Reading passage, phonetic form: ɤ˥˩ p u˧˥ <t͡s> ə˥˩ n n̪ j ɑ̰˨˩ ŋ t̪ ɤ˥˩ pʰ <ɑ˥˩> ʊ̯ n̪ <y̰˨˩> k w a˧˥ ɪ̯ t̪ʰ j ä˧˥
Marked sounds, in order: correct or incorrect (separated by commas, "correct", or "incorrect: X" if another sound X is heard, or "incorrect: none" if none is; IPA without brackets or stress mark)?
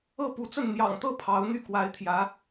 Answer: correct, incorrect: ɑ˧˥, incorrect: y˥˩